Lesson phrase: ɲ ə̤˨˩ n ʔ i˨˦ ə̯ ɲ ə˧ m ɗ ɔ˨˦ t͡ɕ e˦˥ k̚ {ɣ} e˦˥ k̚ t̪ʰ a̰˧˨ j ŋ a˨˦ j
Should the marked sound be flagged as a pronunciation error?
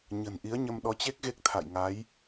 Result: no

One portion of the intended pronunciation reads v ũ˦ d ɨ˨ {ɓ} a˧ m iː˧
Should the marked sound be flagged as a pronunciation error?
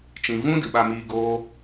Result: no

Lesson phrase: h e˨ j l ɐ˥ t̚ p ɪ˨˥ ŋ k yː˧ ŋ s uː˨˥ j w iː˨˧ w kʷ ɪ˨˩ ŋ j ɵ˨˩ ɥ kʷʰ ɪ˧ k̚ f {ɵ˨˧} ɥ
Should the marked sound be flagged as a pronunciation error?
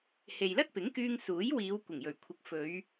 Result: no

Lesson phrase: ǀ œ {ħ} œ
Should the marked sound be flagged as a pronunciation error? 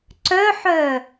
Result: no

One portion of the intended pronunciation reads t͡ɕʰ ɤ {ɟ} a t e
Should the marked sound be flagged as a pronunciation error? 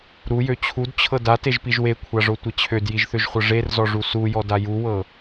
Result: yes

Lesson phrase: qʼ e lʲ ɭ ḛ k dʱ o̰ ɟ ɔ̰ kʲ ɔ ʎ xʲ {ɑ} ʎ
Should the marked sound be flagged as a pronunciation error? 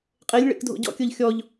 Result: yes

